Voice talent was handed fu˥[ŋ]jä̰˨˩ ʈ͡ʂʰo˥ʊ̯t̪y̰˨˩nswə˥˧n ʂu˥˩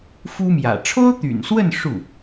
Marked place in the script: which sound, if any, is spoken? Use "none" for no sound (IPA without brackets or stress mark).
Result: m